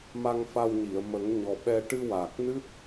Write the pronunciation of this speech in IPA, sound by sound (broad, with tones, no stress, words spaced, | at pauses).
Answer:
ma˧ŋfa˧wɲi˨˩˨ə̯ mə˨˩˦ŋɲɔ˨˩ɓɛ˧ ʈɨ˧ waː˨˩k̚nɨ˦˥t̚